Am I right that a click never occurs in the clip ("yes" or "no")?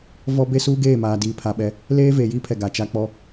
yes